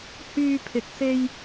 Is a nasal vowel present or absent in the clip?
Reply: absent